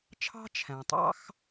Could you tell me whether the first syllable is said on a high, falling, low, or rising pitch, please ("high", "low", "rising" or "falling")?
high